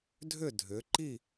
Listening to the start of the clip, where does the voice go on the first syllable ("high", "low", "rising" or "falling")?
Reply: falling